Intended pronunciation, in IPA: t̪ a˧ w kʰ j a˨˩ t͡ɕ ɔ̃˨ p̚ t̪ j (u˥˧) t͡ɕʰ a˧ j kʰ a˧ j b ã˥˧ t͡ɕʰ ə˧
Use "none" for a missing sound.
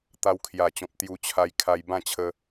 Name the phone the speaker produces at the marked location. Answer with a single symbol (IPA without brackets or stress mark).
u˧